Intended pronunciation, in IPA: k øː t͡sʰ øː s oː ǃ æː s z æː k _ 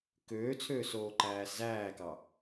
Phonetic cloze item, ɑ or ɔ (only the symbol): ɑ